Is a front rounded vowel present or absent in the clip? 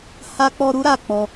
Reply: absent